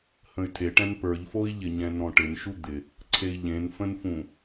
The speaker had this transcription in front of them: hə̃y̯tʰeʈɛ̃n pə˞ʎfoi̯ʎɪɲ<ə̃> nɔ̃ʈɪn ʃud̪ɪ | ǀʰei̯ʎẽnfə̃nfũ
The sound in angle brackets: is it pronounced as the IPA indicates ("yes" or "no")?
no